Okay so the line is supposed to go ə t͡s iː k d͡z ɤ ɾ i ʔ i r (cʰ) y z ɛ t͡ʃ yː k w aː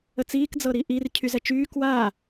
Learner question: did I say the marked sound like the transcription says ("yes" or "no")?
yes